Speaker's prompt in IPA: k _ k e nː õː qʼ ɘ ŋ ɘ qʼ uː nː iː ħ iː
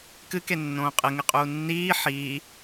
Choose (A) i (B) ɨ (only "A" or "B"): B